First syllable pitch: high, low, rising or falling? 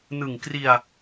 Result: low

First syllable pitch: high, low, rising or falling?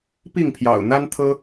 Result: falling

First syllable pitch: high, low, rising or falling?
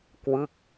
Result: falling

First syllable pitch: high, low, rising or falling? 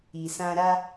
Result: low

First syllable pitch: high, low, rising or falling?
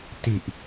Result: low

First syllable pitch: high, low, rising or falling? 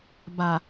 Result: low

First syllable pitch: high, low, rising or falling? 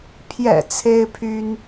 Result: low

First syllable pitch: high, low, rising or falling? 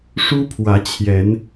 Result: high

